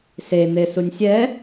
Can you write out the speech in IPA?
s e n̪ e s u nʲ sʲ ɛ

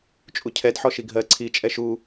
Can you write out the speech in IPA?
t͡ʃʼ u cʰ ɛ d ħ ɔ ʃ i ɡʱ ɜ ǀʰ i t͡ʃʼ ɛ ʃ u

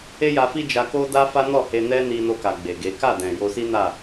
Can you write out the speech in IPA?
e˦ j a˧ f i˦ d͡ʒ a˧ k o˦ d a˦ f a˦ n ɔ˦˨ h e˧ n ɛ˦ n i˧ n o˧ k a˨ ɡ͡b e˨ ɡ e˨˦ k a˦˨ d ɛ̃˨ j o˧ s i˦ n a˦˨

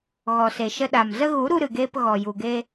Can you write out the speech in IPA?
ɣ ɔ˨ s e˨ ʃ ə˧ ɗ a˨ m z ə˧ ɣ u˨˦ ɾ u˧ ɾ ɨ˨ ɡ eː˧ p ɣ ɔ˨ j u˨ ɡ e˧

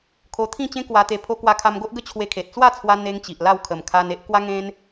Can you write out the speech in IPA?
kʰ o˧ t̪ʰ ĩ˥˧ t͡ɕ ẽ˦ k w a˧ t̪ e˧ pʰ o˦ k w a˧ kʰ a˧ m ɡ o˦ ʔ ɡ ə˦ t͡ɕʰ w e˧ kʰ e˨ t̚ t͡s w a˥˧ t͡sʰ w a˧ n̪ e˦ ŋ t͡ɕ i˨ ʔ l a˥˧ w kʰ ə˨˩ m kʰ a˧ n e˦ ʔ k w a˦ ŋ ẽ˦ n

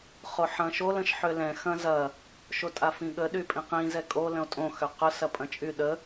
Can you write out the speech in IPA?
χ o ħ ɐ̃ ʃ o l ə̃ ʃ ħ ø l ɛ̃ x ɐ̃ z ɐ | ʃ o tʼ a f ĩ ɠ ə ɗ y pʼ ĩ q ĩ z ɛ kʼ o l ə̃ o̯ tʼ õ x ø q ʊ s ɐ pʼ ɐ̃ t͡ʃʼ y ɗ ə

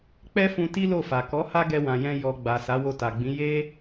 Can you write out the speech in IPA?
k͡p ɛ˦ f ũ˧ t i˦ l o˦˨ f a˨ k ɔ˨˦ h a˦ ɡ ɛ˧ w ã˨ j ɛ̃˧ j ɔ˨ ɡ͡b a˨ s a˨˦ w o˧ t a˨ ɡ͡b ĩ˨˦ j e˦

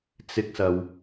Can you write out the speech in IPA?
t͡s ɪ˥ k̚ s ɐ˧ w

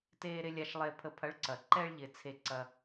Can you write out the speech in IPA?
t eː˧ ɾ ɪ˧ lʲ a˧ ʃ lˠ e˧ pʰ ə˧ pʰ ɐ˨˦ ɭ ǀ ɐ˨ ǃ ɛ˧ ɭ ʎ ɪ˨ t͡sʰ e˧ ǀ ɐ˧

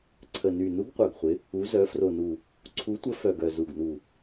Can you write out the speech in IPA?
ǀʰ ə˨˩ n y˨˩ n u˨˥ ɡ qʷ œ˨˩ ɡ χʷ ɪ˨˥ | u˨˥ z œ˨˥ f r o˨˩ n u˨˩ | ǀʰ u˨˥ tʷ ə˨˥ f œ˨˩ ɡ œ˨˩ z u˨˩ ɡ n u˨˩

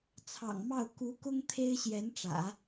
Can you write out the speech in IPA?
t͡sʰ ɑ̰˨˩ ŋ m ɑ˥˩ ʊ̯ k u˧˥ k ʊ˥ ŋ t̪ʰ e˥ ɪ̯ ɕ j ɛ˧˥ n ʈ͡ʂ ä̰˨˩˦

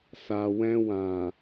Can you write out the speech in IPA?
s a˨ w ɛ̃˧ w ã˨

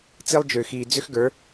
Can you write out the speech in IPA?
t͡s i˦ lˠ d͡ʒ ʏː˨ x iː˨ d͡z ʏ˦ x ɡ ə˞˨˦

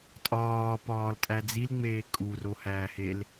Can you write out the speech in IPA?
tʼ ɒː p ɒː l tʼ æ d͡z i l ŋ͡m eː kʼ u r o h æː h e l

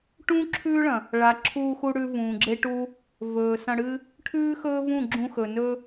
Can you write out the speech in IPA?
ʈ ũː˦ ǁʰ ʉː˦ ɭ ɐ̃˨ | ɭ a˨ ǁʰ uː˧ x u˧ ɽ ʉ˧ v ũː˨ ɡ͡ǁ e˦ ʈ u˦ | v ɵː˨ s ɐ̃˧ ɽ ɨ˦ | ʈʰ ʉː˦ x ɵː˦ v ũ˦˨ ɡ͡ǁ ũ˧ x ɵ˨ n ɵ˦

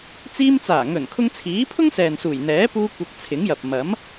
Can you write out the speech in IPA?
t͡s iː˧ m t͡s aː˨˩ ŋ ɵ˨˩ n kʰ ʊ˧ ŋ t͡sʰ iː˨˥ pʰ ʊ˥ ŋ s ɛː˨ n s uː˨˩ j n̪ ɛː˨˥ p uː˧ kʷ ɐ˧ k̚ t͡sʰ ɪ˨˥ ŋ j ɐ˨ p̚ m ɐ˨˥ m

